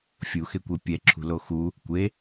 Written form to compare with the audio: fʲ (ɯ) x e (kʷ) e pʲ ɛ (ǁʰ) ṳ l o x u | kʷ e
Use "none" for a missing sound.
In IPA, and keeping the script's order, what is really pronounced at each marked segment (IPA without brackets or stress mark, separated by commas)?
u, kʷ, ǁʰ